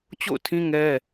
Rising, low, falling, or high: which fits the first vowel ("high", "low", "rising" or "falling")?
falling